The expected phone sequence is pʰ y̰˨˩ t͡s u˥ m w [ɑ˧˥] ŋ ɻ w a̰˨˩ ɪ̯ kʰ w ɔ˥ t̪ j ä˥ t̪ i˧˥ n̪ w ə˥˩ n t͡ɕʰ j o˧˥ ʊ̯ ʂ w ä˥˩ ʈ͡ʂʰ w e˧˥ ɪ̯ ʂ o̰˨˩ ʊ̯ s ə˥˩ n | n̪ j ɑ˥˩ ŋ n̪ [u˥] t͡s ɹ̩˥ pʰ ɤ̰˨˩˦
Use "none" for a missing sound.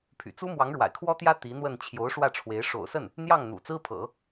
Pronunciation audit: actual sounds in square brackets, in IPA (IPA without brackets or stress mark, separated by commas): ɑ˧˥, ṵ˨˩